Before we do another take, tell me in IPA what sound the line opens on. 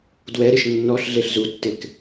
d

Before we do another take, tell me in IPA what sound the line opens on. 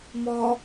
m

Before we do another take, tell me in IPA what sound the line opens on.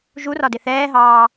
ʒ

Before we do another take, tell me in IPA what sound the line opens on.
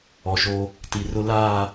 ɔ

